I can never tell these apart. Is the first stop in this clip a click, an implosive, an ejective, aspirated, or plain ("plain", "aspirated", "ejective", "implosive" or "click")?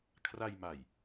aspirated